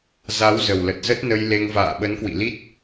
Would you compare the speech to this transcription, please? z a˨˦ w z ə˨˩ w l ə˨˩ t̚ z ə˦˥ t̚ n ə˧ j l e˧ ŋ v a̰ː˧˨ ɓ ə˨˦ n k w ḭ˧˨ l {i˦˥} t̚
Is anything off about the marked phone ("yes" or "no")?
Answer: no